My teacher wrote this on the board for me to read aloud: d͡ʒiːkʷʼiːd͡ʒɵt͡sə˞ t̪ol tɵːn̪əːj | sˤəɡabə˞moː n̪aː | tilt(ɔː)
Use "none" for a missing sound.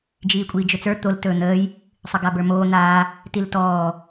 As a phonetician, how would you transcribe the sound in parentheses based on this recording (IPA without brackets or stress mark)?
ɔː